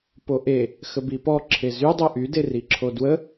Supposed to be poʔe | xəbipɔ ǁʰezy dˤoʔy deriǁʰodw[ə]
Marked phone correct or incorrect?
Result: correct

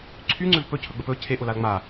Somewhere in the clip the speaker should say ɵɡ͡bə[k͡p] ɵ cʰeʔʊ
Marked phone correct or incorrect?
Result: incorrect: p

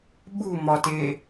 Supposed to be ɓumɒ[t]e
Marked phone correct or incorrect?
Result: correct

